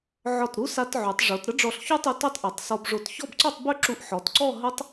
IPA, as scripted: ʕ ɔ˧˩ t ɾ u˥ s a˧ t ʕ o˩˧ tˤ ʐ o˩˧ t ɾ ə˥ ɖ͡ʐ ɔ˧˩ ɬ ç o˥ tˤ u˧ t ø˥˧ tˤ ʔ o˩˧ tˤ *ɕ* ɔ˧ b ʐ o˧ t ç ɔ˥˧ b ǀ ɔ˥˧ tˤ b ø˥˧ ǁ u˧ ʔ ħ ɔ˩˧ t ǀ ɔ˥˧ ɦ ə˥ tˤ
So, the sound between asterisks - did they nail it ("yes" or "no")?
no